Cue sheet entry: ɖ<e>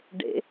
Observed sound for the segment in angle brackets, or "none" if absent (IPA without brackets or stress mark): ḛ